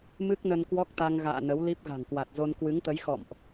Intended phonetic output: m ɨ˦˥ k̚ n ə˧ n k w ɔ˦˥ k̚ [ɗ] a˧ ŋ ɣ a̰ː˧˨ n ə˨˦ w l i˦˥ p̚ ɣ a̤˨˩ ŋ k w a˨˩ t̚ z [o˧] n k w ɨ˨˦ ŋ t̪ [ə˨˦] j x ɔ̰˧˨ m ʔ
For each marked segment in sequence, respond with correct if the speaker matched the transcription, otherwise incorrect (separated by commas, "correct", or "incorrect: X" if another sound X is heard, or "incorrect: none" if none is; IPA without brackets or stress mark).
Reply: incorrect: t̪, correct, correct